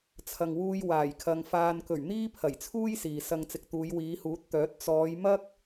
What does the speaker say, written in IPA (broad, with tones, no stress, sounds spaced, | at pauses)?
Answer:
t͡sʰ ɐ˨ ŋ w uː˧ j w aː˨˩ j kʰ ɐ˨ ŋ f aː˨ n k ɵ˨˩ ɥ n̪ iː˥ pʰ ɐ˨˩ j t͡sʰ uː˥ j s iː˨ s ɐ˧ ŋ t͡s ɪ˨ k̚ t̪ uː˨˧ j w iː˨˧ h uː˨˥ t̚ t̪ œː˨˥ t̚ t͡s ɔː˨˧ j m ɐ˥ k̚